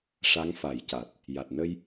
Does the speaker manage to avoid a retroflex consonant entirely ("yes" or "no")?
no